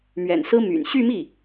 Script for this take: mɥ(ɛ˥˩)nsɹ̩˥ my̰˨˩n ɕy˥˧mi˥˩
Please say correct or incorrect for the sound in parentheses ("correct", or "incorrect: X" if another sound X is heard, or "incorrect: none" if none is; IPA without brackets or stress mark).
incorrect: ɛ̰˨˩